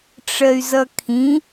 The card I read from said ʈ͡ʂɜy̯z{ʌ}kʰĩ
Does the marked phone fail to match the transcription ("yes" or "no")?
no